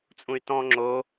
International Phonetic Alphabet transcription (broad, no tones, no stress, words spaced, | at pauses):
t͡sʼũy̯tɔ̃ ŋ͡ǁo